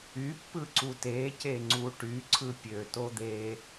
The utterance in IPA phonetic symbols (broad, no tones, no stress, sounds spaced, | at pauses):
y pː ɯ ǀ u t e c e ŋ͡ǀ u ʈ y ǀʰ ɯ pʲ ø t o d̪ e